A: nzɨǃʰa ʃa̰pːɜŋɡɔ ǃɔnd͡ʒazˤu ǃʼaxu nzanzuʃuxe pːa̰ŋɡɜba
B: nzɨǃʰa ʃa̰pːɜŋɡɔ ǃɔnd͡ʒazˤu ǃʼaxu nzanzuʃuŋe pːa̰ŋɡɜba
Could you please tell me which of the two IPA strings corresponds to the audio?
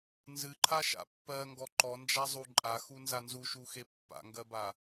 A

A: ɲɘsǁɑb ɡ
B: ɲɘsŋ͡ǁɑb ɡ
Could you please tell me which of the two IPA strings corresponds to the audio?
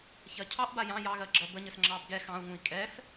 B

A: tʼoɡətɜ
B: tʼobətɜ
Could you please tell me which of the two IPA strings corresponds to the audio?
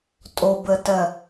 B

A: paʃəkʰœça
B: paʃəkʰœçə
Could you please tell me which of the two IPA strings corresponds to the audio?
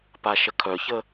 B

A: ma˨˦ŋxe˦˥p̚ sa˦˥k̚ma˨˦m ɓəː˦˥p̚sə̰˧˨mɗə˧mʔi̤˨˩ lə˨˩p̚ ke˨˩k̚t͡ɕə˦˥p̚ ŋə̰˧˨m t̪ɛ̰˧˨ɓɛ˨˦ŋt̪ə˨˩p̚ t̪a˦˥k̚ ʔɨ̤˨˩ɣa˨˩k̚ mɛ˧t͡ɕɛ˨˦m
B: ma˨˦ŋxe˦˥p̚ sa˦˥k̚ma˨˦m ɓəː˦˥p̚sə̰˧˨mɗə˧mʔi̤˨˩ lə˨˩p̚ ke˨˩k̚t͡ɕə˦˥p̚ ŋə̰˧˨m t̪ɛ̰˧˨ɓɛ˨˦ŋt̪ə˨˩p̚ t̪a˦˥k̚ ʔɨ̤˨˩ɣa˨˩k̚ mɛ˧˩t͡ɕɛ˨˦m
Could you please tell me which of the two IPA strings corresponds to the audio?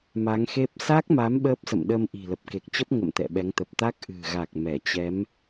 B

